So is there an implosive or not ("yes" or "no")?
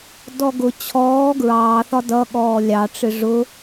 yes